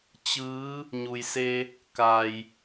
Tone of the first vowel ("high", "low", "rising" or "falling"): rising